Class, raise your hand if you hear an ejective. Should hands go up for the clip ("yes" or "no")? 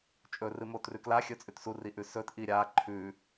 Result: yes